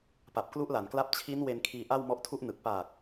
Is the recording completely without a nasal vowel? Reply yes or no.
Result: yes